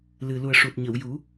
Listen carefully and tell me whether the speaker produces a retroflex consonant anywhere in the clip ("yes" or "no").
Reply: yes